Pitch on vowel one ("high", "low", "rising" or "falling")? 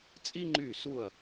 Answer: high